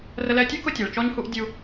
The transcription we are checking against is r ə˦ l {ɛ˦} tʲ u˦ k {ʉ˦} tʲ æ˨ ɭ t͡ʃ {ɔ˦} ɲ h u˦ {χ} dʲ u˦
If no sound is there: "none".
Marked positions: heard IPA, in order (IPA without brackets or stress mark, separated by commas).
ɛ˦, ʊ˦, ɔ˦, ʔ